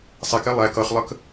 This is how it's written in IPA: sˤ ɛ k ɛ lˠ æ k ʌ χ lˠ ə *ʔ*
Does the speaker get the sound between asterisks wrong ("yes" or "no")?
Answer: yes